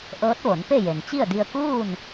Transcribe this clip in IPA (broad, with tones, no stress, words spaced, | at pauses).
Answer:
ʔɤː˧˥t̚ʋo˩˧n pe˥˨je˩n t͡ɕi˥˨ə̯di˧ə̯ kuː˥˨n